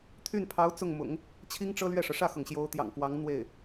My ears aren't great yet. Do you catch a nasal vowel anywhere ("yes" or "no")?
no